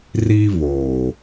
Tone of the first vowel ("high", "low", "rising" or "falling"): high